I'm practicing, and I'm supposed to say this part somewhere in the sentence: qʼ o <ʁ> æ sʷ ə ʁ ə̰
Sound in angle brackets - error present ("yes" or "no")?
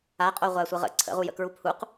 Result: yes